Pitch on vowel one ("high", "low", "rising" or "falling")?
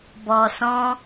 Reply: low